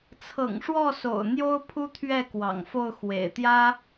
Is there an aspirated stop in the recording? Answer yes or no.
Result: yes